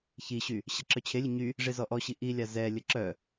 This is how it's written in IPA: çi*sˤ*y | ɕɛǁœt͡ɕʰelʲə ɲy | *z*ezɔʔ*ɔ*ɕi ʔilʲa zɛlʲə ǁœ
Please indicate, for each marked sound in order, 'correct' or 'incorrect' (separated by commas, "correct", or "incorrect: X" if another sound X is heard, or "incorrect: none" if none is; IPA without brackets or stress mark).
incorrect: ɕ, incorrect: ʐ, correct